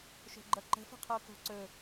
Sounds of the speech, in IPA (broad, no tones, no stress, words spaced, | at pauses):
ʃo̤ɡ͡ǃʌǃə̤ fə̤qʰoko̤ǀɵ